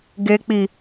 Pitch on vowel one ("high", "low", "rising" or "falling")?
low